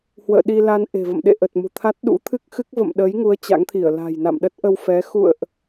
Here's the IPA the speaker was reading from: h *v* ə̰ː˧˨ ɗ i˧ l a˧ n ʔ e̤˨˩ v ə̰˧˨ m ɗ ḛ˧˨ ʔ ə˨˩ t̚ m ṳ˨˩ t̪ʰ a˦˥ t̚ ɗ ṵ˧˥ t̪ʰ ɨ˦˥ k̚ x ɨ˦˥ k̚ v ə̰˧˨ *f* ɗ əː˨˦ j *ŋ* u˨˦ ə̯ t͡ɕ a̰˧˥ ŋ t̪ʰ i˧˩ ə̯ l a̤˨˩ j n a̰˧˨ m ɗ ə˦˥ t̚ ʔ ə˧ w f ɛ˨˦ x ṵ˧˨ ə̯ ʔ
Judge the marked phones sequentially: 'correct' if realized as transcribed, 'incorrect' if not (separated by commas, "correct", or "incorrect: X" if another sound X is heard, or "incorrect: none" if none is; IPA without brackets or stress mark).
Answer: incorrect: w, incorrect: m, correct